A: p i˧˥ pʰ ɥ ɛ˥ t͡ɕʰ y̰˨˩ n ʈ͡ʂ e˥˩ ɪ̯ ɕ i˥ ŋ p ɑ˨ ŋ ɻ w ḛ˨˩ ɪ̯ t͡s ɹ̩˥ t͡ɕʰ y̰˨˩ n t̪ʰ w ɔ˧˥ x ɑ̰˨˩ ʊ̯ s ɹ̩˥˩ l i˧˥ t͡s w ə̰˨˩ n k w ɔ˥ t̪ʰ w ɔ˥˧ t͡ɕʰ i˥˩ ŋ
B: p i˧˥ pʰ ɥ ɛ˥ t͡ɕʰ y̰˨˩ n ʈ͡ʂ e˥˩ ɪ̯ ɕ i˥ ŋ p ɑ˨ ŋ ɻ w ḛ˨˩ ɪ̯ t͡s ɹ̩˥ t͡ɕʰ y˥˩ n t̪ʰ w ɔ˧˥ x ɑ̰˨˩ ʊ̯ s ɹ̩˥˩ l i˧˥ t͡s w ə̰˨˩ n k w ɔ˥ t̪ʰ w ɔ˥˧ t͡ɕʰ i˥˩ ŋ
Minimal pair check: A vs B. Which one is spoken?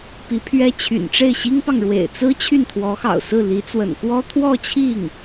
B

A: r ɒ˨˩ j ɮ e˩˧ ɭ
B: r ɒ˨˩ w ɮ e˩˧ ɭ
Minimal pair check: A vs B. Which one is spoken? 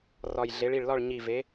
A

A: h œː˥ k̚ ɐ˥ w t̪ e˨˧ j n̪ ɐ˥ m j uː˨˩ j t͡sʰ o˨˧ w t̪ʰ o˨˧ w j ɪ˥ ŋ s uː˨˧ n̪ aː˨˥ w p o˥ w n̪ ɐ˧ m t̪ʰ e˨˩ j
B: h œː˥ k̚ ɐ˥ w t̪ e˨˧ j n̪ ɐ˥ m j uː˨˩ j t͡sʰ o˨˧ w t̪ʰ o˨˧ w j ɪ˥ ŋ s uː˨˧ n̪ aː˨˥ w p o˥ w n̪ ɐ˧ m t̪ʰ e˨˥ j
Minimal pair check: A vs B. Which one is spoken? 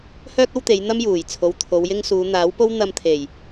A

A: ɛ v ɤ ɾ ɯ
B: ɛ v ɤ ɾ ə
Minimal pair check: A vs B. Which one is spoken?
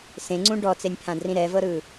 A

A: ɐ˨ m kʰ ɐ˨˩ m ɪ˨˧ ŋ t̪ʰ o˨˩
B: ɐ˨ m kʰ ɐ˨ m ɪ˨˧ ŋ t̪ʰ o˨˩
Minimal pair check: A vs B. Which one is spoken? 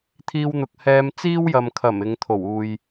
A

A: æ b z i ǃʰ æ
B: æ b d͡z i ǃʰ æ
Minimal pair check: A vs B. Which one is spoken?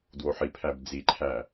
B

